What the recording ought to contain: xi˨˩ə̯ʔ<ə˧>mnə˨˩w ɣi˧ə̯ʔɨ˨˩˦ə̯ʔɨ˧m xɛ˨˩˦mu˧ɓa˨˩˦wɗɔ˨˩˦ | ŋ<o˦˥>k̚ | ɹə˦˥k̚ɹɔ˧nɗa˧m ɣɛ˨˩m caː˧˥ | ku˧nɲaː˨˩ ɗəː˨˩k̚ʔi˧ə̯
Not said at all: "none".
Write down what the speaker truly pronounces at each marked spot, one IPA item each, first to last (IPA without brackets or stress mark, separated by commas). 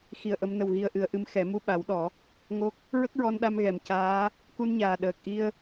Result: ə˨˩˦, o˦˥